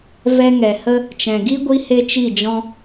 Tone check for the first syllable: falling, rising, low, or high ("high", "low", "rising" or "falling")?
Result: high